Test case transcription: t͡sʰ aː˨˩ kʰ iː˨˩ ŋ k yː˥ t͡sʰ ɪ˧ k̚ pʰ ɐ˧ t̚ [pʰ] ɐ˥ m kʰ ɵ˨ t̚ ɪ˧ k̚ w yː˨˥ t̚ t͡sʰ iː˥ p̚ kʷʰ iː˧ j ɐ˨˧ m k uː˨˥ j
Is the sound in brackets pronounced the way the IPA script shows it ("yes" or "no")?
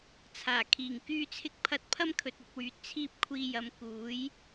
yes